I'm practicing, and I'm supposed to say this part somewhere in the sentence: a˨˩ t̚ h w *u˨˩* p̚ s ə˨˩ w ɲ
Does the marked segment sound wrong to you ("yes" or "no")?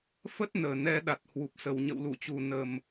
no